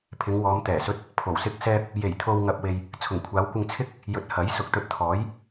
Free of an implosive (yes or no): yes